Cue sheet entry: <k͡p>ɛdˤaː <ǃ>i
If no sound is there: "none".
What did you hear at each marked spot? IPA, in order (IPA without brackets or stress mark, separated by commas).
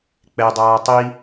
k͡p, tˤ